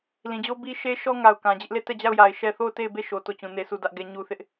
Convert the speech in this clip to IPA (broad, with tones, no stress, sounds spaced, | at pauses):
l ĩ˨ d͡ʑ o˦ b i˦ ʃ e˦ ʃ ɔ˦ ŋ a˨ ʊ̯ k ã˨ d͡ʑ ɪ˦ ʔ l e˦˨ t ɛ˦˨ d͡ʑ a˦˨ ʊ̯ j a˨ ɪ̯ ʃ ɛ˦ θ o˦˨ ʊ̯ t e˦˨ ɪ̯ b e˦˨ ʃ o˨ t o˦˨ t͡ɕ ũ˨ n e˦ sʰ u˦˨ d ä˦ ʔ ɡ ɛ˦ ɲ u˦ θ ɪ˦ ʔ